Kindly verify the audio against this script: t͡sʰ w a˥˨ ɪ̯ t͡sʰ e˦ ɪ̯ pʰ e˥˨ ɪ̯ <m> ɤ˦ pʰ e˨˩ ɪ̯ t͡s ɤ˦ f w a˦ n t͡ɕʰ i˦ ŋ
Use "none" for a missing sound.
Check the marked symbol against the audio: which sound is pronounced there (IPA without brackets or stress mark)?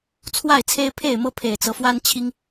m